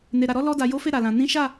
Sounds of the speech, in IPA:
ne˨ɾa˨ɾɔ˨˦ lɔ˧da˨jo˨˦fe˦˨ ɾa˨lã˨ nĩ˨˦ʃa˦˨

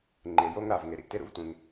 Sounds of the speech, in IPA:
ŋ͡ǃe˩jo˥ŋɾa˩v ŋe˩ɾḭ˩ʔte˥ ɾṵ˥vtʷẽ˩ŋ

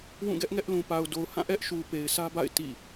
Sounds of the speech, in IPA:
wũ˦˨ɡɛ˦ʔŋɛ˦ʔ lũ˨ pa˨ʊ̯do˨ʊ̯hã˦˨ ʔɛ˦ʔʃu˨pe˨ɪ̯ sʰä˦ba̰˦˨ɪ̯ tḭ˦˨

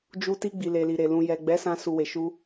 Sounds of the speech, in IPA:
d͡ʒu˧ ti˧ɡ͡bi˨le˨li˨ ɾe˨lũ˨ jɛ˨ɡ͡bɛ˨˦ sã˧su˨we˨ʃu˧

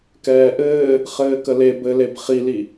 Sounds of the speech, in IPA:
kɛːʔɘː | χɘːkəle bɘleb χili

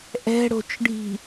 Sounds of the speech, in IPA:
ʔɛ̤ɽo̤t͡ʃɖʱi̤

